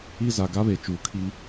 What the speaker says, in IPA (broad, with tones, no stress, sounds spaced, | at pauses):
i˦ z a˨ ɡ a˦ β e˨ t͡ʃ uː˨ kʰ iː˦